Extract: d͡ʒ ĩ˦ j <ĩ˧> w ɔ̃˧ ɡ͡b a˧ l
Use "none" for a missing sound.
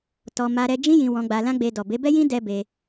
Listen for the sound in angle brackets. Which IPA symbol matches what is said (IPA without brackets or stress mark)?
ĩ˧